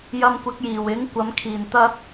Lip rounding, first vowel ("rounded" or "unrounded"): unrounded